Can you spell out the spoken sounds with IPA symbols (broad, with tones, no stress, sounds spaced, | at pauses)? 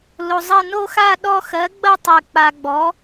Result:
l o˨ zˤ ɐ˥˧ n o˥˧ x a˥˧ ɗ ɔ˥˧ x ɜ˩˥ ɡ͡b ɐ˥˧ tˤ ɜ˨ k͡p a˨ ɡ͡b ɔ˩˥